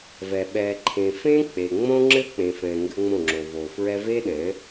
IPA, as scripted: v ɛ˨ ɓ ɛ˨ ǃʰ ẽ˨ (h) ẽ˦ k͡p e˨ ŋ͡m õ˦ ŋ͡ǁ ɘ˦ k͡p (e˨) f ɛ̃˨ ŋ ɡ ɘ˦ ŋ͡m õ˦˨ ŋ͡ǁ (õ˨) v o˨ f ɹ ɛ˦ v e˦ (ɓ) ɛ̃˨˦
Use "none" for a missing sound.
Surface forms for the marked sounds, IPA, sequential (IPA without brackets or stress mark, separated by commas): f, ẽ˨, o˨, ɗ